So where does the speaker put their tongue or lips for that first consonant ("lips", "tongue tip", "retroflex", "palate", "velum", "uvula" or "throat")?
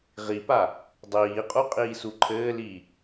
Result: uvula